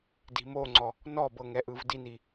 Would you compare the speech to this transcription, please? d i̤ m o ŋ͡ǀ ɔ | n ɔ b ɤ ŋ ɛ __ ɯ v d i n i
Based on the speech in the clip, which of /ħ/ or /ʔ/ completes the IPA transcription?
ʔ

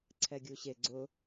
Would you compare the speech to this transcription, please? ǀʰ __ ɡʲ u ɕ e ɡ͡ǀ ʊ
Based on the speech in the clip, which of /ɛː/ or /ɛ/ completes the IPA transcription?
ɛ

